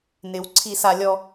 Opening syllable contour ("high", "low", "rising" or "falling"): low